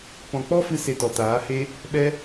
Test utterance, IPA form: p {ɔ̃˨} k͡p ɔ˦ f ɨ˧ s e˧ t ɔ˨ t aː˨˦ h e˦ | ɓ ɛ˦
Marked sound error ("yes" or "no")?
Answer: no